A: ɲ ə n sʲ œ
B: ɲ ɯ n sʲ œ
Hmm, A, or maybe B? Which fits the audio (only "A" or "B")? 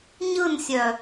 B